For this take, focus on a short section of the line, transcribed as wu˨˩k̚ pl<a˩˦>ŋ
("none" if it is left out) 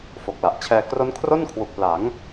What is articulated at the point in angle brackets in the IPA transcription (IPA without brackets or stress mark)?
a˩˦